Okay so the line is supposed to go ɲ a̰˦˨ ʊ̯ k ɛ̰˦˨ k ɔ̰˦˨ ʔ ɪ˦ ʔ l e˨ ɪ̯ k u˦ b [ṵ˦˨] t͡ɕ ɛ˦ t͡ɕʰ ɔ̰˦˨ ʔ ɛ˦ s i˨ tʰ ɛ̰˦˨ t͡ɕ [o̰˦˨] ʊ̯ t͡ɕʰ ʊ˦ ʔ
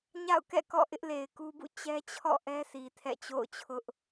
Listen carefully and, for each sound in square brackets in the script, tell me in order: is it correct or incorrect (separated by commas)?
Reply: correct, correct